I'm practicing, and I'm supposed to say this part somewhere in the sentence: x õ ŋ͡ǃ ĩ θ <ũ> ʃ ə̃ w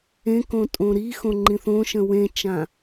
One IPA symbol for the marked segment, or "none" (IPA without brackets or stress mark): õ